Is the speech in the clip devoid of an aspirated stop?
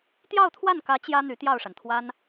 no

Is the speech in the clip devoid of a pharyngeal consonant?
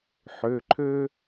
no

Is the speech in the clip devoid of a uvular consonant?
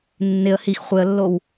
no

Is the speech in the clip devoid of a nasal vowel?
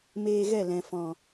no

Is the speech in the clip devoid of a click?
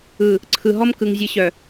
no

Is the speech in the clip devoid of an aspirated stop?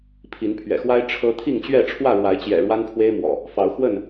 no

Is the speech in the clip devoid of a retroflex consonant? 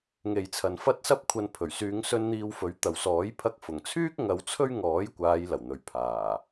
yes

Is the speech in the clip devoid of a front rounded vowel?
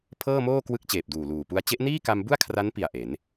yes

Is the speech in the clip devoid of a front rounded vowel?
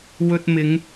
yes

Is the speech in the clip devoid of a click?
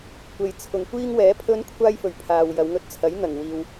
yes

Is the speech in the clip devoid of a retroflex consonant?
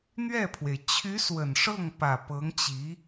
no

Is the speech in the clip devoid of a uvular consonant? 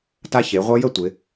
no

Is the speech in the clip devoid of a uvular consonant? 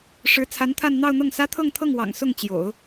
yes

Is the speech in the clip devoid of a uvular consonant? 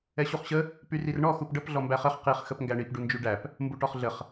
no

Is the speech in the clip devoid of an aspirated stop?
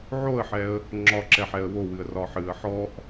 yes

